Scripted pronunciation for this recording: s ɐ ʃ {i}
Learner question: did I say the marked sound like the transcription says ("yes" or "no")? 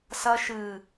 no